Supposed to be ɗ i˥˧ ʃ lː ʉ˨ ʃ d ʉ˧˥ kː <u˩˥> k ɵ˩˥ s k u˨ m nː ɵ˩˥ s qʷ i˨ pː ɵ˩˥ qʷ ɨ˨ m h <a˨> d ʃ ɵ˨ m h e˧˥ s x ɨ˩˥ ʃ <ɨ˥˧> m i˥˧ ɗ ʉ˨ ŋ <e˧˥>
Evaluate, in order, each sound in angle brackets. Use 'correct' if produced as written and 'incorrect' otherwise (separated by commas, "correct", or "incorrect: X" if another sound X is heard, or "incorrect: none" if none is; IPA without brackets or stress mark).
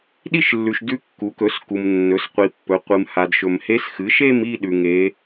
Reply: correct, correct, incorrect: e˥˧, correct